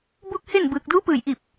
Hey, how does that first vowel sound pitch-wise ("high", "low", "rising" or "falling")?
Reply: falling